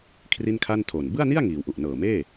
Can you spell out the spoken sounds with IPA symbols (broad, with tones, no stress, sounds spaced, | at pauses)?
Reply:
kʰ r i˥˩ n kʰ a˥˩ n tʰ o˨˩ n b ɯ˥˩ a̯ n i˥˩ a̯ ŋ iː˩˦ w ʔ u˨˩ ʔ n ɤː˨˩ m eː˥˩